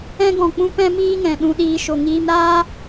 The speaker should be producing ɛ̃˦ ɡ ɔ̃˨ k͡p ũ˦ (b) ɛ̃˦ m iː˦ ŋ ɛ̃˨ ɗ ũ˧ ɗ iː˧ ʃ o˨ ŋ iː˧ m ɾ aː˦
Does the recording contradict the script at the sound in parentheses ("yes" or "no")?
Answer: yes